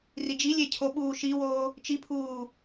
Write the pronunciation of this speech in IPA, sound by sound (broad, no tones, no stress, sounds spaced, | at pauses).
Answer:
r i d͡ʒ i lʲ e cʰ o ɓ uː ʃ i w oː | t͡ʃ i pʰ uː